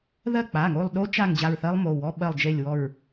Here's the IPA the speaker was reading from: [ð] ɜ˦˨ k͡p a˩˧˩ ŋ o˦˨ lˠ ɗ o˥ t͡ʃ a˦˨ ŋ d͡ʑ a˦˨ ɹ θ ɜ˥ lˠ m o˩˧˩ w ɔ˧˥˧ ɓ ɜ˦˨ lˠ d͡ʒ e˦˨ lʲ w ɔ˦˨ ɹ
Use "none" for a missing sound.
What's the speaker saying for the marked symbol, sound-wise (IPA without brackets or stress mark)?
ð